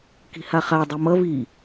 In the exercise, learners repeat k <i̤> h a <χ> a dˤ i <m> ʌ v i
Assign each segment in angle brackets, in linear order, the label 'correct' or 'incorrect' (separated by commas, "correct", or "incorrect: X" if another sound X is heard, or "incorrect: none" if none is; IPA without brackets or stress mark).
correct, correct, correct